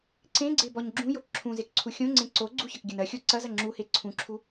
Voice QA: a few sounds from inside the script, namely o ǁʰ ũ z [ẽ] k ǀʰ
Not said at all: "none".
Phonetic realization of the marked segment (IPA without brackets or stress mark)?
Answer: e